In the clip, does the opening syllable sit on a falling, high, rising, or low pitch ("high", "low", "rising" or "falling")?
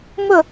falling